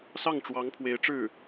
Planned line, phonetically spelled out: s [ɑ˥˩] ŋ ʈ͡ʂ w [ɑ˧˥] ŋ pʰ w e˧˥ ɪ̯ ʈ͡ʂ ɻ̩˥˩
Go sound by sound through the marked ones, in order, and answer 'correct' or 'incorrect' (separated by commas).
correct, correct